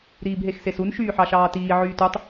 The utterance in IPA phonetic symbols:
ɾiːbɦexsesun ʃyːħɑʃɑːtiː ʕyːtutˤ

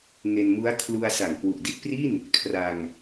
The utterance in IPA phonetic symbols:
ŋe˧nmu˦˥a̯ kʰlu˧a̯ sa˨˩ŋkwu˨˩ʔdi˦˥t̚pri˥˩n | kʰra˧ŋ

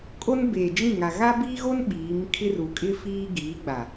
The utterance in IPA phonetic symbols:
kʼo˦nbeː˨d͡ʒĩ˦˨ŋa˨ ɣa˦biː˦ɣo˦n ɓiː˨˦m kʰɪ˦ru˨kʼɪ˦ fiː˦ ɡiː˨˦ɡ͡ba˨

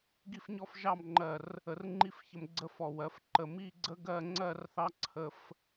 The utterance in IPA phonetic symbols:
ɡi˥˧fɲɔ˥fʒɑ˥˧mŋ͡ǃɜ˧˩r | ə˧rŋ͡ǃi˥˧fçə˧m ɡ͡ǀə˥˧fɔ˧˩ wɜ˩˧fǃə˧˩ mi˥˧ɡ͡ǀə˥ ɡɜ˥˧ŋ͡ǀɜ˥˧rθɑ˥ǀʰə˧f

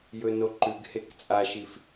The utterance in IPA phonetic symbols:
jɵnoǃʉɡhek t͡sʼaʃif

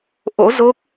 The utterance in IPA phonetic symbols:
ʔo̰˧˥zo˦˥k̚

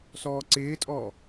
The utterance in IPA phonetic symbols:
sɔːǀɪːtʼɔː

